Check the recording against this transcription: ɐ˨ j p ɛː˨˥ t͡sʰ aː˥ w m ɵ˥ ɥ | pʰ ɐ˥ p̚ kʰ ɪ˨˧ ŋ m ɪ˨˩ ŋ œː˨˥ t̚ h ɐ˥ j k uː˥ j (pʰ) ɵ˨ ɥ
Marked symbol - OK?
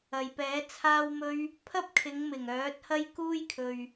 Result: no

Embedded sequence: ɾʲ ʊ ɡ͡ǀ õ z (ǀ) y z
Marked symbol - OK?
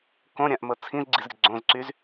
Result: yes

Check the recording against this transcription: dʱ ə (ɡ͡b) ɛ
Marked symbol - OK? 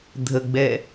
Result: yes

